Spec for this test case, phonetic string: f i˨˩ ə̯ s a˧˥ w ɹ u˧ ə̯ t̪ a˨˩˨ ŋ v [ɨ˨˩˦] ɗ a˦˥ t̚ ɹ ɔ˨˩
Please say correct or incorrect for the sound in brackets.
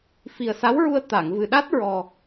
incorrect